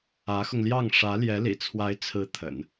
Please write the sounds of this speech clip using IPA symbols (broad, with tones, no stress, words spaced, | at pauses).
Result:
ä˧˥xʊ˧ŋljɑ˥˩ŋ ʂä˧˥ljɛ˧˥lḭ˨˩ t͡sʰwa˧˥ɪ̯t͡sʰɹ̩˧˥t̪ʰə̰˨˩˦n